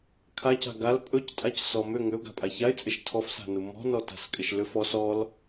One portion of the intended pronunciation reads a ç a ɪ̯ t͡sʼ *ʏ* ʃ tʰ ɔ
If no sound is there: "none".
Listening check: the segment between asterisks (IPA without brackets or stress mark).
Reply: ɪ